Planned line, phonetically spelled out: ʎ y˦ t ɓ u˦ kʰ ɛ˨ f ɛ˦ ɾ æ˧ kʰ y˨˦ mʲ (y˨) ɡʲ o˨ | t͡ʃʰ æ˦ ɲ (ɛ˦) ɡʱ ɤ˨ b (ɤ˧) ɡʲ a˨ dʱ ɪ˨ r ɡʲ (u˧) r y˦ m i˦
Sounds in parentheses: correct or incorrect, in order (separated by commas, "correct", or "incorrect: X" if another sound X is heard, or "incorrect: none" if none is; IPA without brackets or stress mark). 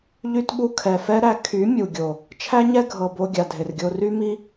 incorrect: u˨, correct, incorrect: o˧, incorrect: o˧